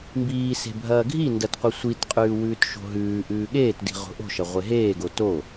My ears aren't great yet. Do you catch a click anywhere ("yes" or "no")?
no